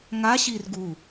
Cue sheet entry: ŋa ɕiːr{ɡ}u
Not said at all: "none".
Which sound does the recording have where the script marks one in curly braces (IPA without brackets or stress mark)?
ɡ